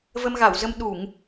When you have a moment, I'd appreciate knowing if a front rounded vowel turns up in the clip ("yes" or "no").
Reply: no